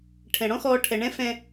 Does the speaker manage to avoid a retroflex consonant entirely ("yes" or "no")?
no